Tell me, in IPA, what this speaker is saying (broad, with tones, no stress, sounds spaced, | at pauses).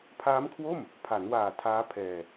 pʰ aː˦˥ m kʰ w o˥˩ m | pʰ a˩˦ n w aː˨˩ tʰ aː˦˥ pʰ ɛː˧